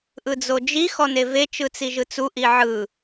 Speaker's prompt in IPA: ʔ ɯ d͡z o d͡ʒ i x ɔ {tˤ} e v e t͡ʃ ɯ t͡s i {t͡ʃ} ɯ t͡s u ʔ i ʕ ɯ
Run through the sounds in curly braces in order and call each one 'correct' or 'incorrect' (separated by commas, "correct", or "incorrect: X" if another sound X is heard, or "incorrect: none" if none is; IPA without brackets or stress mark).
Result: incorrect: n, incorrect: ʒ